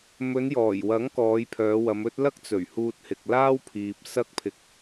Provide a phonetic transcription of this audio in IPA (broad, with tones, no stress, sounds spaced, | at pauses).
m ɵ˨˧ n j ɔː˨˩ j w ɐ˨˥ ŋ k ɔː˨˧ j pʰ œː˨˧ w ɐ˨˧ m ɵ˥ t̚ l ɐ˥ k̚ t͡s ɵ˨˩ ɥ h uː˧ t̚ h ɪ˨ k̚ l aː˥ w pʰ iː˨ p̚ s ɐ˥ k̚ pʰ ɪ˧ k̚